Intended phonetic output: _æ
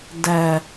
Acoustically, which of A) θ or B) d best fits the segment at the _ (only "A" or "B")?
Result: B